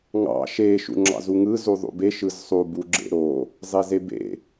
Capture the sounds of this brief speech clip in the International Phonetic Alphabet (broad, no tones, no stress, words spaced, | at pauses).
ŋɑ̰ ʃe ʃṵŋ͡ǁɑ̰zuŋɯ zuðˤṵbe ʃɯzsˤu buɡ͡ǁḛɾo | zˤezebḛ